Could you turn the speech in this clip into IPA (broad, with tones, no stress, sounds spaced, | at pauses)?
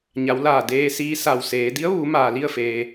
ɲ a˩˧ w l aː˧˩ d eː˧ s iː˧ s a˧˩ w s eː˩˧ d i˧˥ ə̯ ʋ uː˩˧ m aː˩ l i˥˨ ə̯ f eː˩